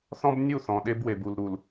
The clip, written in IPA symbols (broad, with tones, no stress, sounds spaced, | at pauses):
θ ɔ̃˦ b nʲ u˦˨ θ ɔ̃˨ ɗ e˦ b w e˨ b u˨ l ɾ u˨ l